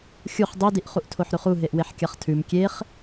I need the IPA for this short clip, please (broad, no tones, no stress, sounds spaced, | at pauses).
xʲ u χ dˤ i d i ʔ χ u ʔ tʰ o ħ ɾ ʉ χ u ɦ e ʔ w e ħ kʲ a χ tʰ ʉ m kʲ e χ